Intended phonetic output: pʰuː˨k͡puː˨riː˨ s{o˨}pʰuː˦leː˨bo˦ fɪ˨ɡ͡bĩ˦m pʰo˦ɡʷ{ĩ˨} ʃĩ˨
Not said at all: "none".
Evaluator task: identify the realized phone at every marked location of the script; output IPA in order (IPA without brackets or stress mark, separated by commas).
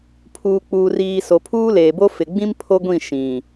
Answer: o˨, ĩ˦˨